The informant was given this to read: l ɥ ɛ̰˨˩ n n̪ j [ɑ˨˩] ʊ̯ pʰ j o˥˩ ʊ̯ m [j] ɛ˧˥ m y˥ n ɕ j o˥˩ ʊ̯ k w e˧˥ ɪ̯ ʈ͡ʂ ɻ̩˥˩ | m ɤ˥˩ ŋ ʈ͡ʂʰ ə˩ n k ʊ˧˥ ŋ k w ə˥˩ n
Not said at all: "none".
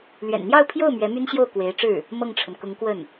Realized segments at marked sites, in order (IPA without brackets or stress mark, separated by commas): ɑ˥˧, ɥ